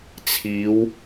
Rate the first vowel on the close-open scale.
close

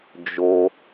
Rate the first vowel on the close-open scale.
mid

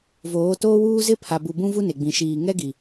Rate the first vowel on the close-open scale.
mid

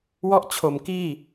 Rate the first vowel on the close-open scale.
mid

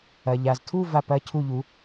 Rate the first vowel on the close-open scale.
open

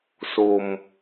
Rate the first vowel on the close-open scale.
mid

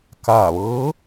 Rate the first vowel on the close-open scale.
open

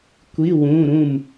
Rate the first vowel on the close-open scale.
close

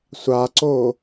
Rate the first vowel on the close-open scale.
open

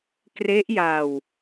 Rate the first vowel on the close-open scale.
mid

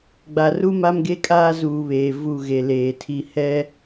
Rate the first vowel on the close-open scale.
open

